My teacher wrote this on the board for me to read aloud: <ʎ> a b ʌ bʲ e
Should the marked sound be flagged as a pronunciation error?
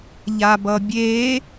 no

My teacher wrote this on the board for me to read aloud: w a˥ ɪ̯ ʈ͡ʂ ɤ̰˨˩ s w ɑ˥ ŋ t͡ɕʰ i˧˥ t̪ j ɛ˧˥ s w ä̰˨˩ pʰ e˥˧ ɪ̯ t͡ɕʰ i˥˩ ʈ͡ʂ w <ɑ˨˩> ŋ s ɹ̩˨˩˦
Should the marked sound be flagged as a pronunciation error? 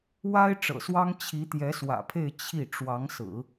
yes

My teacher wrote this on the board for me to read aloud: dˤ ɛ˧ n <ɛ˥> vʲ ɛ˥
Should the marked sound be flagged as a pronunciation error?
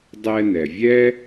yes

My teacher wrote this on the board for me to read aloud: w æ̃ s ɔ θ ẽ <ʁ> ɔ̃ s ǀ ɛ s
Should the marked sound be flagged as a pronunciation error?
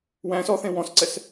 yes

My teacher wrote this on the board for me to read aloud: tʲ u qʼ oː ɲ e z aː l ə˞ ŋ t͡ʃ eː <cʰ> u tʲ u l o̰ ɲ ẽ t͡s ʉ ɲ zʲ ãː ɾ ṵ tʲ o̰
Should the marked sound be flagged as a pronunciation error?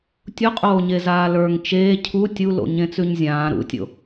no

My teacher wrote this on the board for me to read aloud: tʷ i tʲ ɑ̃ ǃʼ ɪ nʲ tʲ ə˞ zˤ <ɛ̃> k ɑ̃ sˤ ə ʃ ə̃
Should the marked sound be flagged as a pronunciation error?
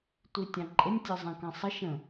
no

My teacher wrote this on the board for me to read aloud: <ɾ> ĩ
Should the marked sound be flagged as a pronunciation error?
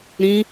no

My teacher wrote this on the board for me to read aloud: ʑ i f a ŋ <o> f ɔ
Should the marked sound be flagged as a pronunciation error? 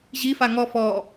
yes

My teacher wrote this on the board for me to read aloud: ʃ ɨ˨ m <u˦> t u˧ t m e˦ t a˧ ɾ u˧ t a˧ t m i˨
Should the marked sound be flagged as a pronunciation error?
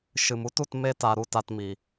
no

